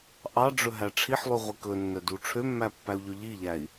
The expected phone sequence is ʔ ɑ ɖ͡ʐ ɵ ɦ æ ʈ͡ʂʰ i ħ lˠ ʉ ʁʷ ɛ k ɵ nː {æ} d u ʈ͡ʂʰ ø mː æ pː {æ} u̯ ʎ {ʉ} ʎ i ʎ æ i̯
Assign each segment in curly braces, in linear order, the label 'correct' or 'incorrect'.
incorrect, correct, incorrect

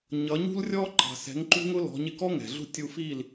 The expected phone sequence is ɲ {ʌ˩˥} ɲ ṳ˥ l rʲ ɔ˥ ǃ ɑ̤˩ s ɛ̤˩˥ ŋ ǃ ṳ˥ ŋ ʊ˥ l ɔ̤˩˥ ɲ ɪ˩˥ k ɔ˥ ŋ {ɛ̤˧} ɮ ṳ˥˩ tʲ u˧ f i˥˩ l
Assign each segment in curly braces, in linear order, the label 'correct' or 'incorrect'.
correct, incorrect

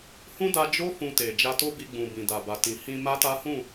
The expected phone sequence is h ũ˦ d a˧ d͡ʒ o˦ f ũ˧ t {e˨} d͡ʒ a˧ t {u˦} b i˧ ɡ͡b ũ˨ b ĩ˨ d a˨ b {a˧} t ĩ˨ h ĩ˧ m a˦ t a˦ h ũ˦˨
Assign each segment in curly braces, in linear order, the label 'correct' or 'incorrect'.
correct, incorrect, incorrect

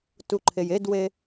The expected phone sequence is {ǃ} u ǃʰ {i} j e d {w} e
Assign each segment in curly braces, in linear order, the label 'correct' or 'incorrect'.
incorrect, incorrect, correct

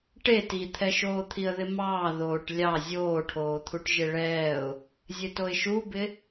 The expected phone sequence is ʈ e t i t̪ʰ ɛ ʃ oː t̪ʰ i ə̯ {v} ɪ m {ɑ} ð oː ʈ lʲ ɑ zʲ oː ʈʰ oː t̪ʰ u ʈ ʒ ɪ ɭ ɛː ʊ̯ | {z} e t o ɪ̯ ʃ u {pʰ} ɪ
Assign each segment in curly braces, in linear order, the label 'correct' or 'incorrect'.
incorrect, incorrect, incorrect, incorrect

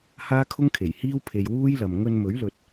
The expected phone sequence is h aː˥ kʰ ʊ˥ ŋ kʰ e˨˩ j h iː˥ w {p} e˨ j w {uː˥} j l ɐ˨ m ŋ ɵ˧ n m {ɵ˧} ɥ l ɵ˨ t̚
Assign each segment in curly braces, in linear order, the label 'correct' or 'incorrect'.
incorrect, correct, incorrect

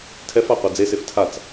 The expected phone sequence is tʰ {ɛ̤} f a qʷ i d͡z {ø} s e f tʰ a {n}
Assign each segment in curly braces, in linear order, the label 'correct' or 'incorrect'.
incorrect, incorrect, incorrect

